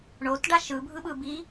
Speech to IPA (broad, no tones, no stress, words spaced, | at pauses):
ɳotɖa ʃɯbʱɯɓɯbiː